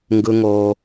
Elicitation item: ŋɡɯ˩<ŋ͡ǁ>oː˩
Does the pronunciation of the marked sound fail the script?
yes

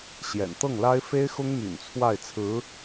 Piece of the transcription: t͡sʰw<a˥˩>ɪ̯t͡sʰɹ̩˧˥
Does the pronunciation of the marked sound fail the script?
no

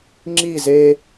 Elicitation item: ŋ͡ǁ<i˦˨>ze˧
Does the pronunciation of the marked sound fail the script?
no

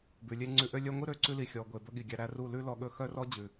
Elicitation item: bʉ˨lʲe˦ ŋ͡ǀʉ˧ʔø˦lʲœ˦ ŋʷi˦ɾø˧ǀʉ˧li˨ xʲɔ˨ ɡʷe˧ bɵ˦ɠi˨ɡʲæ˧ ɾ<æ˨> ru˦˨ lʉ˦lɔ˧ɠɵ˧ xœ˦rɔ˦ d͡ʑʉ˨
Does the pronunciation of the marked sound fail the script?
yes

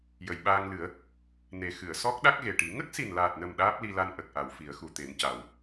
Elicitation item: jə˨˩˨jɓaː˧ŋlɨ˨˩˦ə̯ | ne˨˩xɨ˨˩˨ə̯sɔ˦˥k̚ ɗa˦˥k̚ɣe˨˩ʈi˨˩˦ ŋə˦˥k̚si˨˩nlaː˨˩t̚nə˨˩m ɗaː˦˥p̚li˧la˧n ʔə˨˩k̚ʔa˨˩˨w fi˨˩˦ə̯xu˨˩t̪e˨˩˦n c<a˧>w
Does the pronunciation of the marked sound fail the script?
yes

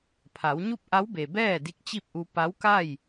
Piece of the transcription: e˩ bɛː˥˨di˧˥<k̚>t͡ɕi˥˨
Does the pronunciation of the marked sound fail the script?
no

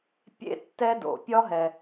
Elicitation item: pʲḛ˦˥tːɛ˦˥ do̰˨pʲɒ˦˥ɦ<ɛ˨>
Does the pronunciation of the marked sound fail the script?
no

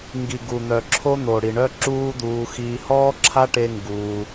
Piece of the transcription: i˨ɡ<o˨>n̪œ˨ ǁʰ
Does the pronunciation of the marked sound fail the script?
yes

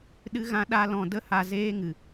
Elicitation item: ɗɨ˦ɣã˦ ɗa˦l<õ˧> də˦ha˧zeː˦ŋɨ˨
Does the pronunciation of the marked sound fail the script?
yes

